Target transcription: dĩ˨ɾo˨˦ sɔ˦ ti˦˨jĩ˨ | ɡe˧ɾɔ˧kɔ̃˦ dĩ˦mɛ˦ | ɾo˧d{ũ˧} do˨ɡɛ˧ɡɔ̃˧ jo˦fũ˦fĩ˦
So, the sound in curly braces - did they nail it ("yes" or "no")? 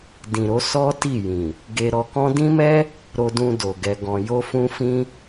yes